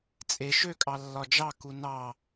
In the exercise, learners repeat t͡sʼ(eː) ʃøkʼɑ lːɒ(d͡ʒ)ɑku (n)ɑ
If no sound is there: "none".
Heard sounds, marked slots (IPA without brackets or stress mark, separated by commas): e, d͡ʒ, n